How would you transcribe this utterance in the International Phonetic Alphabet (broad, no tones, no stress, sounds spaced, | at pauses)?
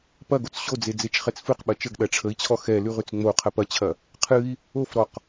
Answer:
p ɐ ɡ o t͡s ɕ o d͡z e d͡z e t͡ʃ χ ɛ t͡s f ɨ q ɓ ɐ t͡ʃ ə ɡ ɗ ɐ ʈ͡ʂʰ ə i̯ t͡ɕʰ ɔ x ɛ l ʉ ʁ ʉ t͡s ŋ͡m o qʰ ɐ p ɐ t͡ɕʰ ɐ | qʰ ɨ i̯ | o f ɾ ɔ q